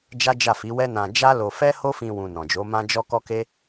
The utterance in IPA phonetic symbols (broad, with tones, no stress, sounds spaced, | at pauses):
d͡ʒ a˦ d͡ʒ a˦˨ f i˨˦ w ɛ˦ n ã˧ d͡ʒ a˦ l o˧ f ɛ˦ h o˦ f ĩ˧ w ũ˧ n ɔ̃˨ d͡ʒ o˨˦ m ã˦ d͡ʒ ɔ˦ k ɔ˦ k e˦